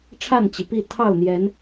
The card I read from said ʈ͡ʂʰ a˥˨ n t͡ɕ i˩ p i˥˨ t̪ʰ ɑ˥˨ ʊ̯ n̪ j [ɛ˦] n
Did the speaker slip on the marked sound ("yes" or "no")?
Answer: yes